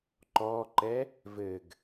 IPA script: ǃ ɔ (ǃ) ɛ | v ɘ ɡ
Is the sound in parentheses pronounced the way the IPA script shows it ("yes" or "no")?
yes